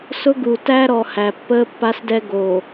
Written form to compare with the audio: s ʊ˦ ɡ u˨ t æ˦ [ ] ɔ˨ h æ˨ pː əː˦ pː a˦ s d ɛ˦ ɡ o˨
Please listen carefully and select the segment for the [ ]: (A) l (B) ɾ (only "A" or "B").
B